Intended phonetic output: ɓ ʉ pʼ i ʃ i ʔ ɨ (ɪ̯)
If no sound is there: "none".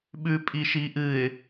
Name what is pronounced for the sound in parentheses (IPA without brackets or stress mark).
ɪ̯